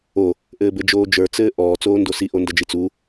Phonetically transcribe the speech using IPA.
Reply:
o | ʔɘːbɘd͡ʒoːd͡ʒə˞ t͡sɘːʔɔː t͡soːndosi ʔondʌd͡ʒit͡su

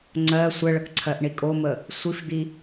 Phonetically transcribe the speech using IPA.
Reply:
ŋ͡ǀɜ sʷəɭək ǀʰɜʔɳikʼomə | sʷifd̪i

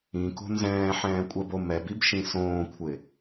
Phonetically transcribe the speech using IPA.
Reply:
ĩko̤ nzɛ̃ːħɛ̃ːkʷʼɛbo mɛbibʃĩ sõːkʷʰɪ

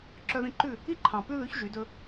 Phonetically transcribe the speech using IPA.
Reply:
ǁœ˧ðĩ˧ǃʉ˦˨ | i˦ǃʰɑ̃˨ pʉ˦ðʉ˨˦ç ʒy˨˦dɵ˦

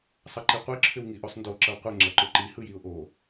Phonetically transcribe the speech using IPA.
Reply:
sˤʌǃiqʷi ǁʰʏwŋiʔosˤndo ǁʌwqʷe ŋ͡ǁʌǃʊǃi hɯjiʊ̯ʔo

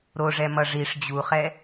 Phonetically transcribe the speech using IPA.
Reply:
ɾoʐɛ mʌʐiʂ d͡ʑuχɛ

